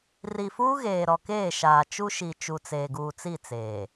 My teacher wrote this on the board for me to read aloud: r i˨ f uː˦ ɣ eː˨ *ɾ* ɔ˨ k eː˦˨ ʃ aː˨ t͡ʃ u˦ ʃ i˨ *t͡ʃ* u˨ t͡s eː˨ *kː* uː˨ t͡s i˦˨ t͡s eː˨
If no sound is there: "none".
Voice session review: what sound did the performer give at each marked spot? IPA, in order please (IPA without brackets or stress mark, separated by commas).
ɾ, t͡ʃ, ɡ